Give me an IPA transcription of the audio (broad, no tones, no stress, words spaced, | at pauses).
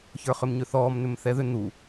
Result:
çə˞χʏmɲʏθɔːm n̪ʏmθɛðʏ n̪u